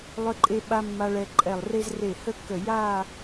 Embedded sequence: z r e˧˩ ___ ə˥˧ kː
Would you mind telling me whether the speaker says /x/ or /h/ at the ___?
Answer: h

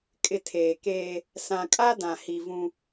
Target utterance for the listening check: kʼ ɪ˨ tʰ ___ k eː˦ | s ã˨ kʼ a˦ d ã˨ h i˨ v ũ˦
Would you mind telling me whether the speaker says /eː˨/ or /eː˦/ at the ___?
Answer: eː˨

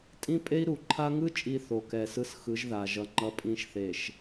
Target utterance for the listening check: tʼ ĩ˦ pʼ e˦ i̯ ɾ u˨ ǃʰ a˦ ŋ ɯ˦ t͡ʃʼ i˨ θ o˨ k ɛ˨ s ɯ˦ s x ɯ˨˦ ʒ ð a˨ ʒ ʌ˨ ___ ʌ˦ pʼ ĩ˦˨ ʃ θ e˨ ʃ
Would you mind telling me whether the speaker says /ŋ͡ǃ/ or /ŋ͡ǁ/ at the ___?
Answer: ŋ͡ǃ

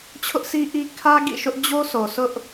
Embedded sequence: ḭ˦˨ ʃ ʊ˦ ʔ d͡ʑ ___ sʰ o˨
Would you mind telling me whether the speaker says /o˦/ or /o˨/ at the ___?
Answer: o˦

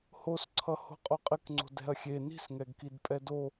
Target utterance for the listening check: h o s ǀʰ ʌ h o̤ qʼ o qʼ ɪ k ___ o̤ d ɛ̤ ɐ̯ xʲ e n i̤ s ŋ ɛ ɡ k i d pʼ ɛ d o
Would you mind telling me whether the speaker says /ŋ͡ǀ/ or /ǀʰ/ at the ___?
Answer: ŋ͡ǀ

